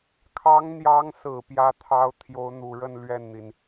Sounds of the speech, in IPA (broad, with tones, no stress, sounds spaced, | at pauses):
kʰ ɑ˧˥ ŋ n̪ j ɑ˧˥ ŋ s ɹ̩˨˩ p j ä˥ t̪ʰ ɑ˥ ʊ̯ t̪ʰ j o˧˥ ʊ̯ n̪ u˨˩ ɻ ə˥˧ n l ɥ ɛ˥˩ n n̪ i˩ n